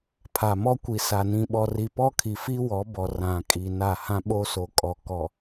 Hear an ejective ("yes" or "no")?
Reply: yes